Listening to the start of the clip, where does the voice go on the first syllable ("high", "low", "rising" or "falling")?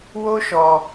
high